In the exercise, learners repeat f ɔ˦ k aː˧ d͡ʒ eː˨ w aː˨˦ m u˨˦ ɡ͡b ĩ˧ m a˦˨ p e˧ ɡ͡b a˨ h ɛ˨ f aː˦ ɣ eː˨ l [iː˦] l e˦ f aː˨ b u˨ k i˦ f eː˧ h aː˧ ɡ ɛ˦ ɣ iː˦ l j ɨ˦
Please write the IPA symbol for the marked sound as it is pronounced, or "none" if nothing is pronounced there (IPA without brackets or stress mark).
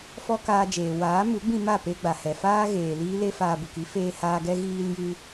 iː˦